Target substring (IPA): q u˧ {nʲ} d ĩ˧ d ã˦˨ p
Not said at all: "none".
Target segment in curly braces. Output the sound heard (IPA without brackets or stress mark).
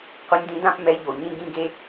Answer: nʲ